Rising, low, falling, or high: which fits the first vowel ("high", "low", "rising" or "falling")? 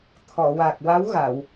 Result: low